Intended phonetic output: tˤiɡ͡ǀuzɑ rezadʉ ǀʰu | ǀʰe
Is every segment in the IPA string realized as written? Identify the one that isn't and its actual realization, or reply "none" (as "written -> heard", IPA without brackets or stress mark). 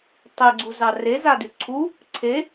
none